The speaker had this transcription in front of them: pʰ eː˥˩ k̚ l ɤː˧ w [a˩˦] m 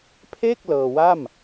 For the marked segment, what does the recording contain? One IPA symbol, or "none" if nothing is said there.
a˥˩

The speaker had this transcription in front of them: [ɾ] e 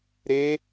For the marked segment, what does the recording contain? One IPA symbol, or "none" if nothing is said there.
ɾ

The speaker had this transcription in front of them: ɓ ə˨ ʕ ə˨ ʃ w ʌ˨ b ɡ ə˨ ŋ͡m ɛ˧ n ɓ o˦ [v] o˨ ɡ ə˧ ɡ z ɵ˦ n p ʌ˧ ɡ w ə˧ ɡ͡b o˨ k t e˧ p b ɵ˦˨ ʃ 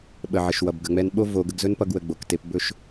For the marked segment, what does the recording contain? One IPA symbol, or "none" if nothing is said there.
v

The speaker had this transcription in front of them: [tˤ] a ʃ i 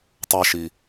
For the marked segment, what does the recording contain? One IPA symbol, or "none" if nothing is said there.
tˤ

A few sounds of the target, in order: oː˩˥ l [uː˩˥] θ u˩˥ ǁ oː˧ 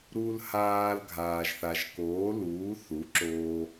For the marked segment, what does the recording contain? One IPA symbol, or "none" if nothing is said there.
uː˩˥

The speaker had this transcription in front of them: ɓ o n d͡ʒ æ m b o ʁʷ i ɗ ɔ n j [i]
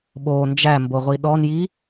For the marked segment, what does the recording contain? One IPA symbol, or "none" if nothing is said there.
i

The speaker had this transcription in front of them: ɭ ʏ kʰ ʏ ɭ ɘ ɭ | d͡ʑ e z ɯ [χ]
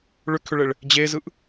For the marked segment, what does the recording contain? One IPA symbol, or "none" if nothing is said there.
ʔ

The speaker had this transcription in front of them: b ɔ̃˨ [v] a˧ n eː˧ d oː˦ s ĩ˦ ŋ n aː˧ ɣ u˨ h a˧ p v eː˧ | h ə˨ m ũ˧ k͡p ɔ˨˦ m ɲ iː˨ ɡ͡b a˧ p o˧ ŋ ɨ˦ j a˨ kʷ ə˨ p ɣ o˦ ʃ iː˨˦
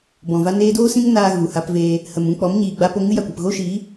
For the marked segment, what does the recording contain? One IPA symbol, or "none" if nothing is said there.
v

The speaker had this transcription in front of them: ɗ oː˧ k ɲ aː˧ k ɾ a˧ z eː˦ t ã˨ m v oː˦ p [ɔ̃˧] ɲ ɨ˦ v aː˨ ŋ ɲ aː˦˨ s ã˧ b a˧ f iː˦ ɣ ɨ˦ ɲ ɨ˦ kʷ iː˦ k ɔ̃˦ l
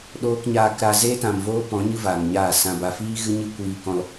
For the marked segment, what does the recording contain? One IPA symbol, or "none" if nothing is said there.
ɔ̃˨˦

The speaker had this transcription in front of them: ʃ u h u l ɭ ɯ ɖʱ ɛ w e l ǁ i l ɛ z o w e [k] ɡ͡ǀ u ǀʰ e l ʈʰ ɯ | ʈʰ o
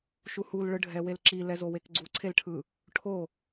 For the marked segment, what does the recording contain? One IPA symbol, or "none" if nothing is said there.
k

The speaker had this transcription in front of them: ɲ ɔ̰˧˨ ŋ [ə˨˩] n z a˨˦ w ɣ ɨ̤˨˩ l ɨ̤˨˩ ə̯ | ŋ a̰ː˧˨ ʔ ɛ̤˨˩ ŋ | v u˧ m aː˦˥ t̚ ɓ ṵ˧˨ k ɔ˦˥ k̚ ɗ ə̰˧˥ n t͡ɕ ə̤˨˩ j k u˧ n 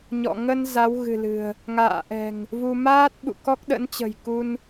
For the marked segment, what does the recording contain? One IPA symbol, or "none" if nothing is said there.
ə˧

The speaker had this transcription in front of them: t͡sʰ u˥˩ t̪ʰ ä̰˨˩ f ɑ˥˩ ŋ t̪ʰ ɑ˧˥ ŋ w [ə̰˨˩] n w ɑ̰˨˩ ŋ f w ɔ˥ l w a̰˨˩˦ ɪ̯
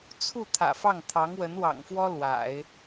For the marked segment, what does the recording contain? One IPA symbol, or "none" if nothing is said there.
ə˧˥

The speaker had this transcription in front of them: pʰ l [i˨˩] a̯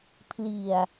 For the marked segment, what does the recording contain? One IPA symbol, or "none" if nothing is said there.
i˨˩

